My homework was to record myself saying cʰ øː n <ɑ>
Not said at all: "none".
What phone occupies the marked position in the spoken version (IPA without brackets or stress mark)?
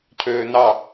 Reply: ɑ